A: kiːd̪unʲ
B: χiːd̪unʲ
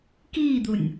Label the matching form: A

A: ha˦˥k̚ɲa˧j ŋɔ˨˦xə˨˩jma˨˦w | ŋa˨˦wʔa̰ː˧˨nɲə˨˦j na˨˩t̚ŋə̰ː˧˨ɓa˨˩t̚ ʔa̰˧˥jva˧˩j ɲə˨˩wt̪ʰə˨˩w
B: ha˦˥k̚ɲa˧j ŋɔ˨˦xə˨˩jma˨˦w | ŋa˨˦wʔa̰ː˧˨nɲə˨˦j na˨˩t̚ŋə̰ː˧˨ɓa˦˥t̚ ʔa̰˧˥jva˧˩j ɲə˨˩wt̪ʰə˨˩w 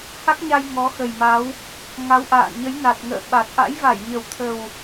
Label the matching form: A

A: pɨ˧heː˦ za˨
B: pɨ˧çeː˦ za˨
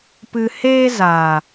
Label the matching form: A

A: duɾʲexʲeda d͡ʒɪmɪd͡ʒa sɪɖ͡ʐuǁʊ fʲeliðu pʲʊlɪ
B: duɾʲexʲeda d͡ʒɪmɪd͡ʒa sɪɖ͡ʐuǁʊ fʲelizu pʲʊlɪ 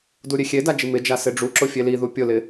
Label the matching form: A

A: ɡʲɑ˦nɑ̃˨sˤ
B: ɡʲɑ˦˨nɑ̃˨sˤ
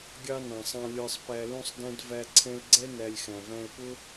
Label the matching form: A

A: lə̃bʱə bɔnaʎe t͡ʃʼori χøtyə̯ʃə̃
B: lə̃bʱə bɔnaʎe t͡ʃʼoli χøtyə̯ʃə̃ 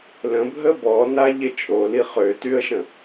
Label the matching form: B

